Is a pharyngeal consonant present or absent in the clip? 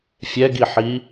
present